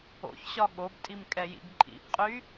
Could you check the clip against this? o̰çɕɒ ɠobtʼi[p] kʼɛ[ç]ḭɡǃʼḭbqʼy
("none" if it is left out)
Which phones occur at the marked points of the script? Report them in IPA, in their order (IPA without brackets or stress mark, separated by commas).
m, j